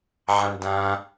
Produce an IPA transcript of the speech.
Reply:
ʕãɳdã

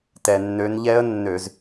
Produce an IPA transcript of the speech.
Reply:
tɛ˩nːø˨˦nʎɛ˦˥ə̯ nːø˧˩˧z

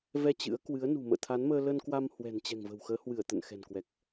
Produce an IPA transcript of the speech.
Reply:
vɛ˧ t͡ɕɨ̰˧˥ə̯kwɨ˨˦ə̯nṳ˨˩ mə̰ː˧˨t̪ʰa˨˦nməː˧ lə˧nkwa˧m hwɛ̤˨˩nt͡ɕɛ̤˨˩ŋvə̤˨˩wxəː˨˦ hwɨ˧˩ə̯t̪ə̰˧˨nxɛ̤˨˩nkwɛ˨˩k̚

